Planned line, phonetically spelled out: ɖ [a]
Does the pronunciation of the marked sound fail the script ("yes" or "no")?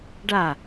no